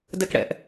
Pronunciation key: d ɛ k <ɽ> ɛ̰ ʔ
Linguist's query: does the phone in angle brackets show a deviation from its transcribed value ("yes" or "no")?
no